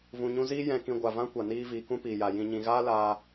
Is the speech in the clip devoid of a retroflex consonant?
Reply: yes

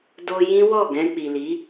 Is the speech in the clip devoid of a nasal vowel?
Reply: no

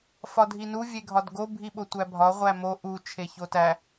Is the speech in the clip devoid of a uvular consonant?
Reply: no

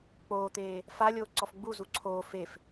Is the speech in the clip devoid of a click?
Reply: no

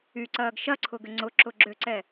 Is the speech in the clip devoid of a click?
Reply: no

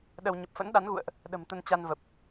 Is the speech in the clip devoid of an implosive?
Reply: no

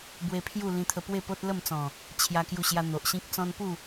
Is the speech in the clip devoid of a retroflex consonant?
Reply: yes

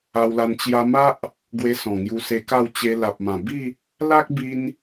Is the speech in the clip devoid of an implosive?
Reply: yes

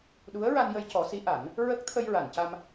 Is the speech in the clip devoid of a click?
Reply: yes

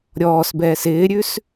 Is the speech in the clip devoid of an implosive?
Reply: yes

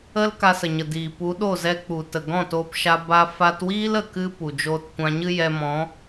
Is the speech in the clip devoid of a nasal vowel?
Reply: no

